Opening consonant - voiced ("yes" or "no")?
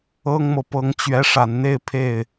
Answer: yes